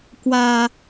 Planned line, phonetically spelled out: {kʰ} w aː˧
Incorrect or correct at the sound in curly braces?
incorrect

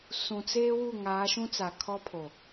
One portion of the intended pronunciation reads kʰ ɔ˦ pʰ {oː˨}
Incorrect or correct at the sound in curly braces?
incorrect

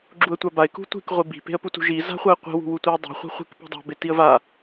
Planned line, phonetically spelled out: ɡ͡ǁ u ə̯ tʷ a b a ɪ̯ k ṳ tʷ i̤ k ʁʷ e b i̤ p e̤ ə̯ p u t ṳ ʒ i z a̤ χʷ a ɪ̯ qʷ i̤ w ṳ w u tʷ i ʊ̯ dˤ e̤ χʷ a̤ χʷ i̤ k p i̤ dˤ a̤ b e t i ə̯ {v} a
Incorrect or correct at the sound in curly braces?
correct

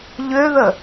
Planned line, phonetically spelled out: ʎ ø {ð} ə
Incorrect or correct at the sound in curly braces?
correct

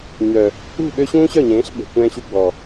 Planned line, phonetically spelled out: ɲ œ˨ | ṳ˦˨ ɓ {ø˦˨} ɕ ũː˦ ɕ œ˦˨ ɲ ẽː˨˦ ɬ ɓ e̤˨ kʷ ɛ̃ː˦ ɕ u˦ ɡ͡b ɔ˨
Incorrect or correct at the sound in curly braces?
incorrect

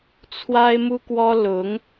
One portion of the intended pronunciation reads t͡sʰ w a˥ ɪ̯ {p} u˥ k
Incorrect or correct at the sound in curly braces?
incorrect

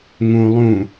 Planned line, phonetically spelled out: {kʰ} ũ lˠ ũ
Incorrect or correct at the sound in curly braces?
incorrect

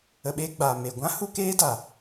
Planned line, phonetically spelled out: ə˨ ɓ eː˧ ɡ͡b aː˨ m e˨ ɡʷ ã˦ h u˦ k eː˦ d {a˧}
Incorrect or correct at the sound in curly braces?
incorrect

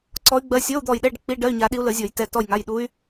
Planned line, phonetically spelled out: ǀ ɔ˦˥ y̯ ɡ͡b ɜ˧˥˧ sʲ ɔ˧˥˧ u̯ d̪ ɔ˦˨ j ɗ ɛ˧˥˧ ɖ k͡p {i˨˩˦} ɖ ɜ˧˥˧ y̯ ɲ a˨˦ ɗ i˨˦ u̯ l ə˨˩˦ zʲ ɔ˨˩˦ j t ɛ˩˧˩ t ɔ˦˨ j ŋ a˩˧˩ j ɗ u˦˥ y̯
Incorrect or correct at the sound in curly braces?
incorrect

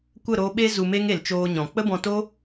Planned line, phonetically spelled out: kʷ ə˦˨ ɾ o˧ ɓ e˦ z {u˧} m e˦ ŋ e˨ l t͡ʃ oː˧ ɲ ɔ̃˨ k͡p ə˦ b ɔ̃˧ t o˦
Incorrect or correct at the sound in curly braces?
correct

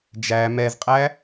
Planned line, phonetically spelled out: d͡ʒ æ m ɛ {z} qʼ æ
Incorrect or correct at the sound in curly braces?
correct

